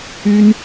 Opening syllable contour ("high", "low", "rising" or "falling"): high